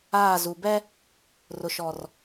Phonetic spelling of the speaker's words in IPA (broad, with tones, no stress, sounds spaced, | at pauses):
aː˦˨ z u˨ b ɛ˦ | r ʊ˨ ʃ ɔ˨ r